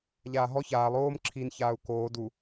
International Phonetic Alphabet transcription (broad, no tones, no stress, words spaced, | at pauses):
ʎaːɦɔ çaːlˠ oːm ǁʰin çaːu̯koː du